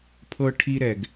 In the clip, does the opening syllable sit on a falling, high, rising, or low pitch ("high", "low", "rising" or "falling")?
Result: high